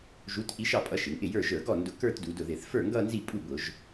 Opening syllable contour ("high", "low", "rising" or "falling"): rising